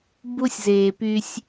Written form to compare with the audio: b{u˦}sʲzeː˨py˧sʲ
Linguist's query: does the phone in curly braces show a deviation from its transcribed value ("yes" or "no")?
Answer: no